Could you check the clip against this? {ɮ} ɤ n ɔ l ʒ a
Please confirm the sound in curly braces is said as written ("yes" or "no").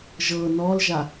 no